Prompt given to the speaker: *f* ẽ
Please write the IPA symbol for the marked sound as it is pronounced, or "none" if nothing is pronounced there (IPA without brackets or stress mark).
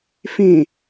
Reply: f